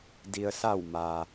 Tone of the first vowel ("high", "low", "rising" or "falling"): low